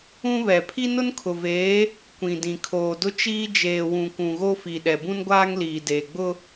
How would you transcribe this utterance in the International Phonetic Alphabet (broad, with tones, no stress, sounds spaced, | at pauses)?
ũ˦ β ɛ˨ pʰ i˦ n ʊ˦ n kʰ ʊ˨ v eː˨˦ | kʷ ĩ˨ d ĩ˨ kʰ oː˨ d ʊ˦ t͡ʃ iː˦ d͡ʒ eː˨ w ũ˨ kʷ ũ˨ ɣ o˦ f i˨ ɗ ɛ˨ b ũ˦ n ɡʷ aː˦ ŋ l iː˨ d eː˨ ɡ͡b ʊ˦